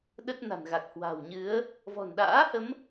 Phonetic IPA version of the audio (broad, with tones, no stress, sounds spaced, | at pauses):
ɗ ə˦˥ t̚ n a̤˨˩ n ɣ a˨˩ k̚ h w a̤˨˩ w ɲ ɨ˨˦ ə̯ | v ɔ̤˨˩ n ɗ a̰ː˧˥ h ə˨˦ m